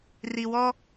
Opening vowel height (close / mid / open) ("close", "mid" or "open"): close